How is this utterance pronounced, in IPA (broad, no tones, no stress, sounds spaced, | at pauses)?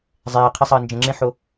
zˤ eː qʰ e sˤ ɐː n d͡ʒ ə̃ ŋ͡ǁ ẽ ħ o